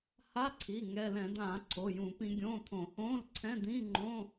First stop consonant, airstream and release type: click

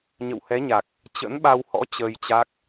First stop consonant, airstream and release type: plain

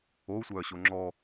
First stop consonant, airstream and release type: click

